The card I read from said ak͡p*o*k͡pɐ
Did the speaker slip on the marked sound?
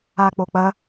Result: no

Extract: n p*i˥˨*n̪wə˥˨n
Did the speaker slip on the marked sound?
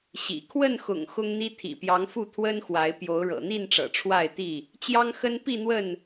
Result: no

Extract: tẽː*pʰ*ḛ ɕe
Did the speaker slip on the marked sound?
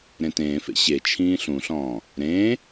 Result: yes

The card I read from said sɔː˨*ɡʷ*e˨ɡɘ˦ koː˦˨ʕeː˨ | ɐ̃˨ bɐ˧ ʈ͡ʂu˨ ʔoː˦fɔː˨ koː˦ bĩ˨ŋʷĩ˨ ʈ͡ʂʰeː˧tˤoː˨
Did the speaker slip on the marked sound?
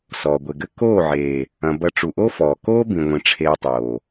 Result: no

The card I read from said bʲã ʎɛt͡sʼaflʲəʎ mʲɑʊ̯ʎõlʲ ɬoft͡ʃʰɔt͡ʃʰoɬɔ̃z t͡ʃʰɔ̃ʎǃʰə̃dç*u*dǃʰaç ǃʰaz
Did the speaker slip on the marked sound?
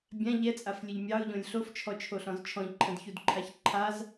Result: no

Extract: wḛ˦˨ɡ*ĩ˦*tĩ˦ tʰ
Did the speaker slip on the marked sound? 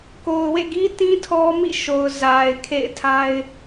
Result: yes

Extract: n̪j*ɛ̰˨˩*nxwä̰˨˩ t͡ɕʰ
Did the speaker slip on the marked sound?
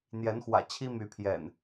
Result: yes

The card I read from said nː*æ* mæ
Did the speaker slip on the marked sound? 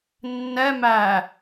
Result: yes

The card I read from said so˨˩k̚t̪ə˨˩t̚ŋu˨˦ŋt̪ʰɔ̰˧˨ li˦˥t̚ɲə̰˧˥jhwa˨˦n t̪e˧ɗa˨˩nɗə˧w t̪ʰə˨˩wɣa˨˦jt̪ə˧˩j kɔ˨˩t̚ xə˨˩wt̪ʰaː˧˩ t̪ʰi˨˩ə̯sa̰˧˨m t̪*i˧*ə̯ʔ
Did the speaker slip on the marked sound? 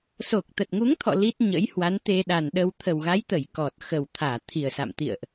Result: yes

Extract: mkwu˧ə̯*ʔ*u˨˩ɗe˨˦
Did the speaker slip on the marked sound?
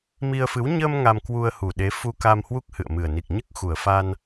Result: yes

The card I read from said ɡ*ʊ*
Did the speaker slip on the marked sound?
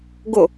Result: no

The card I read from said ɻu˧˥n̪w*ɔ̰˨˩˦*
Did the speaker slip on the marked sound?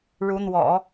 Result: no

